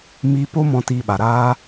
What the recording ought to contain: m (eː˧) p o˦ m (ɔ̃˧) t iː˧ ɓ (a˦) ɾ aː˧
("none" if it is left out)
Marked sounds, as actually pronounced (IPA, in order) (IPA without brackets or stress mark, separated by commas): iː˧, ɔ̃˧, a˨